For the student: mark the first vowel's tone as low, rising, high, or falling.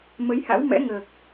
rising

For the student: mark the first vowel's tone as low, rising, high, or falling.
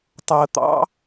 low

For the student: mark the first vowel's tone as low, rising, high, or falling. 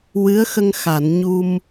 rising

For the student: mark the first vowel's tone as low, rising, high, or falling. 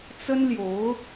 high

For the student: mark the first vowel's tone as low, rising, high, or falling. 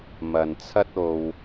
low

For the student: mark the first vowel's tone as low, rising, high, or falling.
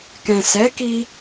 low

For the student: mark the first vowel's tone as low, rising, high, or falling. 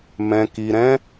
low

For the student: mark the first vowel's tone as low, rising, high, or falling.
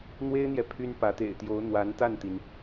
high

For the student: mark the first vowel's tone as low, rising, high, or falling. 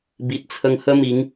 low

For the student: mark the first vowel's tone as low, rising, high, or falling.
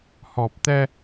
low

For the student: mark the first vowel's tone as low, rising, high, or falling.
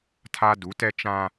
high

